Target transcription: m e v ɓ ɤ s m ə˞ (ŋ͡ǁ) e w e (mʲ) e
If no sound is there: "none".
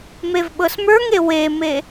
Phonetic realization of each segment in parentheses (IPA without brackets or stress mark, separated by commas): ŋ, m